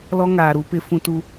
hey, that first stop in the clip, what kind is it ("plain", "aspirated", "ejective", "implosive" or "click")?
plain